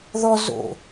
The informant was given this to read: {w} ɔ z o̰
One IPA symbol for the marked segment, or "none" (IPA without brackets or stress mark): ð